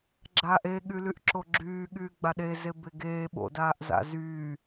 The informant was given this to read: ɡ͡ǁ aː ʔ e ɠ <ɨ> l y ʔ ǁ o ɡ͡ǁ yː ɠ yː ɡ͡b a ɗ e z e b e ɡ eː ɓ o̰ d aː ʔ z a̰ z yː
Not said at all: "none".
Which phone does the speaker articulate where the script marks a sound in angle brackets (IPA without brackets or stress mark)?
y